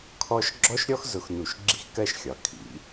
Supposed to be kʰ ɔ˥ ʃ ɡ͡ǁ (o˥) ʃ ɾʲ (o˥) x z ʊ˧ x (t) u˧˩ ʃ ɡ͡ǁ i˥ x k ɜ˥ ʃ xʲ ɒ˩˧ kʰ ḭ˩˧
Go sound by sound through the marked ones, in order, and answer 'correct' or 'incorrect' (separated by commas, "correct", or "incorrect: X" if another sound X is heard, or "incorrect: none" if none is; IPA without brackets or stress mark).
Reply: incorrect: ɔ˥, incorrect: ɔ˥, incorrect: n